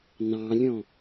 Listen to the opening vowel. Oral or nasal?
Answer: nasal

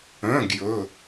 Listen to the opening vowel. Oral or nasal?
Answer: nasal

